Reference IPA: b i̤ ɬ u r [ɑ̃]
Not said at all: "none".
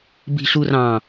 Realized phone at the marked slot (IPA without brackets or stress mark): ɑ̃